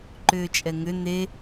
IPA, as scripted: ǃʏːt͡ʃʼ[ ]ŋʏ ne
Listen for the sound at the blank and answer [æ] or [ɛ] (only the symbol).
ɛ